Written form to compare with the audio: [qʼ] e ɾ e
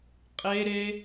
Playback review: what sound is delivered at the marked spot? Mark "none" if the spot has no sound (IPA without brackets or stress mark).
qʼ